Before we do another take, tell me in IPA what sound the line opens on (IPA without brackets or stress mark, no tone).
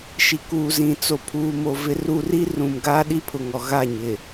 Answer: ʃ